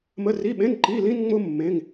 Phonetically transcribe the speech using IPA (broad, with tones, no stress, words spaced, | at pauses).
mə˧˥˧ri˧˥˧ɓẽ˧˥˧n ǃi˧˥˧lĩ˥n ŋ͡mʊ˥ mːẽ˧˥˧ŋ